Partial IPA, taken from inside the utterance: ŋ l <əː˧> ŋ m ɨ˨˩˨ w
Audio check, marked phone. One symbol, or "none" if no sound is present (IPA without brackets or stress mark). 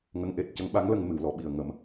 ə˧